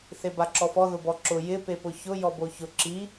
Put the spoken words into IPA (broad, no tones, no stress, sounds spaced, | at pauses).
θ e b a ǁ ɔ f ɔ ð ʊ b ɔ ǁ ʊ j ɪ p e p ʊ ç ʊ j ɔ b o ç ʊ ǁ i